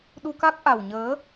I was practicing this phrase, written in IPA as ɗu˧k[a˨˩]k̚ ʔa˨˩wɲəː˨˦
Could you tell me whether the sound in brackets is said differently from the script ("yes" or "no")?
yes